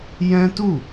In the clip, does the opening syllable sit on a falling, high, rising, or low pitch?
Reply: high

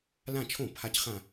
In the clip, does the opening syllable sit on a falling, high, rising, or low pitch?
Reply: falling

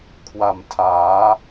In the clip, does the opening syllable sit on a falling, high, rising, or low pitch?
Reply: low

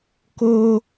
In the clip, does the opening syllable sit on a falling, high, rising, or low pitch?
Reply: high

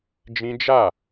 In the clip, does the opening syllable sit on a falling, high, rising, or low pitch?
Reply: high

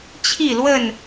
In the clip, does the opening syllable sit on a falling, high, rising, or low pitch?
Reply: falling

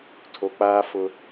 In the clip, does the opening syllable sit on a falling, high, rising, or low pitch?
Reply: low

